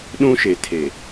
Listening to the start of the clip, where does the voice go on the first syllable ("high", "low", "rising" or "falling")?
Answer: high